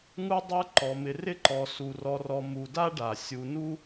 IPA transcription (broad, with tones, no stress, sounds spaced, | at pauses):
ŋ u˦ dˤ ə˞˦ ǃ ɔ˩ m ɪ˨ r ɪ˥ ǃ ɔ˨ s u˩ r ɔ˨ r ɔ˨ m u˨ d a˥ ɖ a˩ sʲ u˨ n u˥